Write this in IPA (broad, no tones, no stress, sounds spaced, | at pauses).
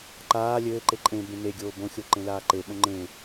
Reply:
ǃ aː lʲ ɘː ǃ e ǃʼ ẽ b ẽ n e ɡʲ oː b õ xʲ o ǃ ẽ l aː ǃ e ɓ õ ŋ͡ǃ ẽ